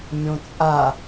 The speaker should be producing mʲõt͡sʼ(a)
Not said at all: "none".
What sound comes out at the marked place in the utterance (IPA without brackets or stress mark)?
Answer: a